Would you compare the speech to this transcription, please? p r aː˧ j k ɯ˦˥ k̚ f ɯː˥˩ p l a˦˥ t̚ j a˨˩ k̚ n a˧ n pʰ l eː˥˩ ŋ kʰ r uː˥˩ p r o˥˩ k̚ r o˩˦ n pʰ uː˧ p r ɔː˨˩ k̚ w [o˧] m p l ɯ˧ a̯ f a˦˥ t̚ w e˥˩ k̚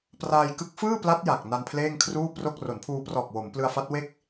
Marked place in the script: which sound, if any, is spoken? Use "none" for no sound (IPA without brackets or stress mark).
o˩˦